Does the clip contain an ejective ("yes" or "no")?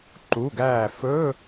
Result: no